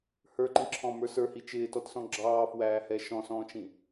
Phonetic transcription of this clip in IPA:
h ə˞ ǃ ĩ ǁʰ ɔ̃ m ə˞ s ə˞ h i t͡ʃ ɪː t ɔ t s ɔ̃ ɡ͡ǁ ɑː f w æː h ɛ ʃ ɔ̃ s ɔ̃ː t͡ʃ ĩ

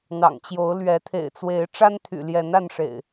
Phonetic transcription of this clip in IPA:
n̪ ɑ̰˨˩ ŋ t͡ɕ j o˨˦ ʊ̯ l ɥ ɛ˨˦ t̪ʰ ḛ˨˩ ɪ̯ t͡s w e˨˦ ɪ̯ ʈ͡ʂ a˦ n t̪ʰ y̰˨˩ l j ɛ˨˦ n a˥˨ n ʂ ḛ˨˩ ɪ̯

